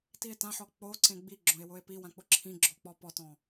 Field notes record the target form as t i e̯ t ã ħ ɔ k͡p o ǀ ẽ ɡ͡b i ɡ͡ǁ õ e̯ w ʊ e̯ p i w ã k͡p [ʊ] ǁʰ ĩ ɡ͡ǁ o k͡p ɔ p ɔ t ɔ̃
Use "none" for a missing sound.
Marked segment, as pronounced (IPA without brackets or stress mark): ʊ